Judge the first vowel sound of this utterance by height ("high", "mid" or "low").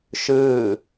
high